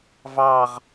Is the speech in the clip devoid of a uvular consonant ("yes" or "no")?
no